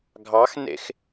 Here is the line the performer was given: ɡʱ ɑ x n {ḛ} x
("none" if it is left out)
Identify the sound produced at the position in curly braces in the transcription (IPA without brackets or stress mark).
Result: ḛ